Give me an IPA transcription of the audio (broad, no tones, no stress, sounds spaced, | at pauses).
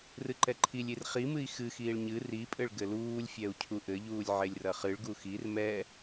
r ɨ ǃ ɛ ǃʰ i lʲ i r χ i m ɨ i̯ x ɨ x iː ɭ ɲ ɨ r i pʼ ɘ ɭ ɡ ɘ l uː lʲ fʲ ɛ u̯ cʰ u ʔ ɘ ʎ uː lʲ ʕ e lʲ r ɐ χ ɨ ɭ ɡ u x i r m ɛ